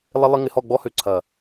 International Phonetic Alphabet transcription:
lˠ ɪ˦ lˠ ɪ˦ ŋ ɪ˧ h ɔ˦˨ ɡ͡b ɔ˦ h ø˧ ǀʰ ɐ˨

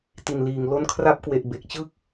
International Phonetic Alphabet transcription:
t i˨˩ n l iː˨˩ ŋ l o˦˥ n kʰ r a˦˥ p̚ k w e˨˩ ʔ b e˨˩ k̚ t͡ɕ ɯ˥˩ k̚

